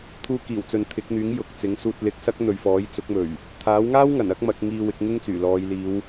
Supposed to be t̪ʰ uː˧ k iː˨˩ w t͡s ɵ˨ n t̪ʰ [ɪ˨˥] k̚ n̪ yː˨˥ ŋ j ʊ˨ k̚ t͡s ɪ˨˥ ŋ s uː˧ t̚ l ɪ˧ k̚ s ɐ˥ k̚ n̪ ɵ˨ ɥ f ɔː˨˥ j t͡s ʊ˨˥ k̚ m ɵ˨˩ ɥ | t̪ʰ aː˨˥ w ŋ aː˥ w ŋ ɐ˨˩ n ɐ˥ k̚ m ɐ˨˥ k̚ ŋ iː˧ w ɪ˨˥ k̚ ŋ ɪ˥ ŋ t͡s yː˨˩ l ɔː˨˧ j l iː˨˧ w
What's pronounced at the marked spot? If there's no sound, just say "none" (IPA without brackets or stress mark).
ɪ˨˥